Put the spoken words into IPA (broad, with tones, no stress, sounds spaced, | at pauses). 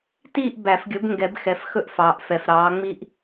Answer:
t iː˥˨ ʔ b æ˨˩˦ f ɡʲ ɵ˨˥ b ŋ ɡ ɛ˨˩˦ b x ɛ˨ f x ɵ˦ ʔ f ɑː˨ ʔ f ɛ˨ f ɾ ɑː˨˥ ŋ͡m i˦ ʔ